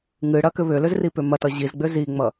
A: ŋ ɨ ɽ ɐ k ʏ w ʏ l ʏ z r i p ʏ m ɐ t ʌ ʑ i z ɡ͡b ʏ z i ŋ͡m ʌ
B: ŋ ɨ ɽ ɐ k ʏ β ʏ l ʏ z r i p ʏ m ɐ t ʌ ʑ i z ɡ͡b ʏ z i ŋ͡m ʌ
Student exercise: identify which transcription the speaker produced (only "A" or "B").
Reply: B